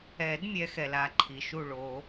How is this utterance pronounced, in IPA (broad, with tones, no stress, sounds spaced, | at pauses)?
ɛ˨˩˦ d mʲ ɛ˨˦ x ɛ˩ l a˥˩ ǃʰ i˩ ʃ u˥˩ ɭ o˨˩˦